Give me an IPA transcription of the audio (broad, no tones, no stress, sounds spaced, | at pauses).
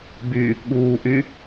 b y | ɠ uː ʔ y